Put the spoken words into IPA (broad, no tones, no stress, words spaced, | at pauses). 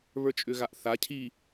βə˞t͡ʃʼʏɣaʔθa cʰi